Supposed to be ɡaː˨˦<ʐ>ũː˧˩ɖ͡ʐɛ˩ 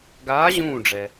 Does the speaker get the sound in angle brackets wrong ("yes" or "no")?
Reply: yes